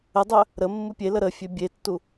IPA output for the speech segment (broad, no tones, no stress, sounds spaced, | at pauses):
ə dˤ œ | ɾ ə mː u pʲ e l ə ɾ ə fʲ ø bʲ e tː u